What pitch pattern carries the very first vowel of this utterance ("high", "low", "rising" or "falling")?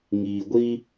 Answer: low